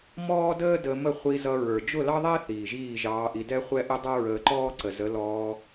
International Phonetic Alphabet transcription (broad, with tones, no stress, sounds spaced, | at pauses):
m ɔː˦ d əː˦ d ə˧ m ə˦˨ χʷ i˧ z ʌ˧ ɹ ə˞˨ d͡ʒ ʊ˦˨ l ɑ˦ ðˤ æ˦ θ iː˨ ʒ iː˦˨ ʒ ɑː˧ ʔ i˧ d ɛ˦ χʷ ɛ˦ ʔ ə˦ dˤ ʌ˦ ɹ əː˧ ǃ ɔː˦ ǀ ə˨ z ə˨˦ l ɔː˧